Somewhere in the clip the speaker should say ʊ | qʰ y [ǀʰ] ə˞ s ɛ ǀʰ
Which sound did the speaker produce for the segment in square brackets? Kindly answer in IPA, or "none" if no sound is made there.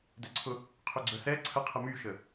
ɡ͡ǀ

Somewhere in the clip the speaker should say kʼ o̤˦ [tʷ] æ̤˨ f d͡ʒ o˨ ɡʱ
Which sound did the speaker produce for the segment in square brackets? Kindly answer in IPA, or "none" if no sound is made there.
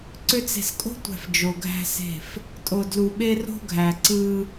tʷ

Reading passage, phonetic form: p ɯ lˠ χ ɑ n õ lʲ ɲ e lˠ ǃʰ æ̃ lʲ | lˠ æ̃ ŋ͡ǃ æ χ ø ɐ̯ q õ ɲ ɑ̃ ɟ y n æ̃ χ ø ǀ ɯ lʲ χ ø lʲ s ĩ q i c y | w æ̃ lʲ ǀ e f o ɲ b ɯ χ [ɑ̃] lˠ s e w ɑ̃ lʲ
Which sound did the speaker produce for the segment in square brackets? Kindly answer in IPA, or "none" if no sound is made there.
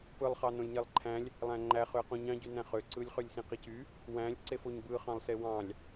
ɑ̃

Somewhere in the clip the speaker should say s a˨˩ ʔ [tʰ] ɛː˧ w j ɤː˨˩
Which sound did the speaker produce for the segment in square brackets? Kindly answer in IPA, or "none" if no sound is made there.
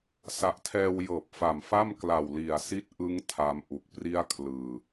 tʰ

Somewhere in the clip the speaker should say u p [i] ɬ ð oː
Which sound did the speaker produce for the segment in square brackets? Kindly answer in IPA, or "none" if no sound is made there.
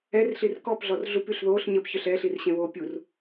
y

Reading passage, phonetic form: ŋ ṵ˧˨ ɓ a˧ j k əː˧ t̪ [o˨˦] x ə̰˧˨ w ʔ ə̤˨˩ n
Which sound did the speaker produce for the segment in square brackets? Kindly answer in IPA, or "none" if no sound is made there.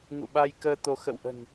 o˨˦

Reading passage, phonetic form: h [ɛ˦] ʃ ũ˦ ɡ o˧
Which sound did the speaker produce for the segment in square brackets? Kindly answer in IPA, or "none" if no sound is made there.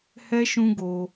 ɛ˦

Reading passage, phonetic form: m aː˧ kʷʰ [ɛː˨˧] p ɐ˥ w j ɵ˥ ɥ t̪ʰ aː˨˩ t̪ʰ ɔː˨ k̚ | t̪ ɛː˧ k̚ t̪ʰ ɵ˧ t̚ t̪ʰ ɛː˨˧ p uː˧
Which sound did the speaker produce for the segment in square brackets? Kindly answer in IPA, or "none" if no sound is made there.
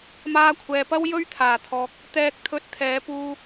ɛː˨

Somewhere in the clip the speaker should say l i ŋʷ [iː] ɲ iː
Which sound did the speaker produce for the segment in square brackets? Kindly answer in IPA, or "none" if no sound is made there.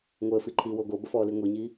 i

